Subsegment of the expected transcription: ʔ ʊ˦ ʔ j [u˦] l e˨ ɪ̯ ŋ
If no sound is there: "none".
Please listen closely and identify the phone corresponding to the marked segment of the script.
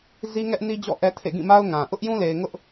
ũ˦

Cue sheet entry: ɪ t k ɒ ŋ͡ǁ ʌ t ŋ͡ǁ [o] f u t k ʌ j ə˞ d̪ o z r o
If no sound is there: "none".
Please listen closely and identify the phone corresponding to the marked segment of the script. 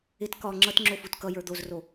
o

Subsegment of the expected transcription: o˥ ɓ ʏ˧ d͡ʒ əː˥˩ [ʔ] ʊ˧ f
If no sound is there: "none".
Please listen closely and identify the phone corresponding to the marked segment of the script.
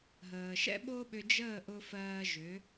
ʔ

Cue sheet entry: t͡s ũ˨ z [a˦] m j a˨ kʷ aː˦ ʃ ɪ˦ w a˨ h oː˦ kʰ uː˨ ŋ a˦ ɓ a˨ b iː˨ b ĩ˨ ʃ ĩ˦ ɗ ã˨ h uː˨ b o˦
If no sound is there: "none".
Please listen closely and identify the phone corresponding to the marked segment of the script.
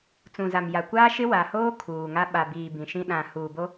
a˨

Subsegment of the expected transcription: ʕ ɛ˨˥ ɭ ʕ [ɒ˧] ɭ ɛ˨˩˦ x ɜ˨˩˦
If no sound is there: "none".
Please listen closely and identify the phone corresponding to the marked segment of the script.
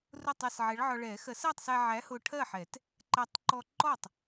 ɒ˧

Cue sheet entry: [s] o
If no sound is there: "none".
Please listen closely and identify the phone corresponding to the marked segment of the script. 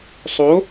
sˤ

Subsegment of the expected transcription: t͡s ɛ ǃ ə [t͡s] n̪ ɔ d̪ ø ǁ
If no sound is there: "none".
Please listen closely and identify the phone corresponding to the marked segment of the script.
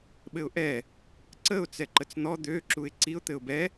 t͡s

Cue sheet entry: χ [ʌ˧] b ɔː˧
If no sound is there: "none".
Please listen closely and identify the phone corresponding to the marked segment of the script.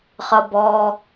ʌ˧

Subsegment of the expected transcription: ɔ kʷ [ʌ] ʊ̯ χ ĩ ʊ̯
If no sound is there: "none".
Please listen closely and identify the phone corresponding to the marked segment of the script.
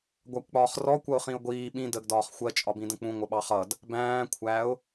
ʌ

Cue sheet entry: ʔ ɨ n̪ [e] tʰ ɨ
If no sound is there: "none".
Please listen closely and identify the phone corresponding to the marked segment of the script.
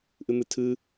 ɨ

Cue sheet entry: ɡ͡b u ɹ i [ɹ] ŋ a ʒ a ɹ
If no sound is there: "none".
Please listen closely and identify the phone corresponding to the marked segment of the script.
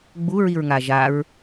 ɹ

